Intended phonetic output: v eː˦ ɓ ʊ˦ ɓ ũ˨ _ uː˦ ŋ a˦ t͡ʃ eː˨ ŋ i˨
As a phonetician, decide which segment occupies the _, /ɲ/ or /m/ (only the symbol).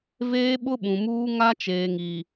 m